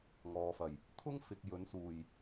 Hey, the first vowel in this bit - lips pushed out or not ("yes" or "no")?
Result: yes